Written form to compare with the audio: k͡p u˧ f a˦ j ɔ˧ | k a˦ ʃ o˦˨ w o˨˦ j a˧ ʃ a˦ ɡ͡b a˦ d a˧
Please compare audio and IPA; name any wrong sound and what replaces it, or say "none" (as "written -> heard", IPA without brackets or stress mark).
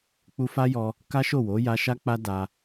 ɡ͡b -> k͡p